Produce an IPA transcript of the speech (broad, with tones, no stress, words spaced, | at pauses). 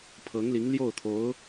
pʰɤ˧˥ŋli˧˥ŋ ljo˥˩ʊ̯t̪ʰo˧˥ʊ̯